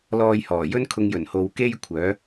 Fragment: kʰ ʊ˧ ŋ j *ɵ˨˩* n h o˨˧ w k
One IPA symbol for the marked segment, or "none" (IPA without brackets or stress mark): ɵ˨˩